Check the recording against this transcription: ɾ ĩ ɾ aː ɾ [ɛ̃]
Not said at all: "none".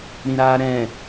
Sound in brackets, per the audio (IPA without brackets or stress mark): ɛ̃